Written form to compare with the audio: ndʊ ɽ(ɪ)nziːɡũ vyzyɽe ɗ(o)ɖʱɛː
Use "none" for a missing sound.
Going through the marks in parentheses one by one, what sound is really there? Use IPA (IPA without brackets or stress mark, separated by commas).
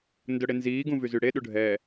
ɪ, u